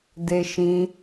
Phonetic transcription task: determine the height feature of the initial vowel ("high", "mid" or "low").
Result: mid